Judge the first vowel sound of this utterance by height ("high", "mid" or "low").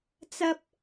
low